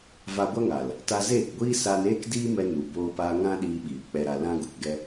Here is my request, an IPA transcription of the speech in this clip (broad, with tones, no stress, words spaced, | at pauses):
va˧ɡʷa˦ŋa˨l | ta˧zeː˦˨kɡʷiː˦ saː˧n eː˦kdiː˦mɛ˧ nu˨boː˧paː˧ ŋã˦ɗiː˧ɓiː˨ k͡pɛ˧ɾa˧ lã˦ ɡu˨kɡɛ˦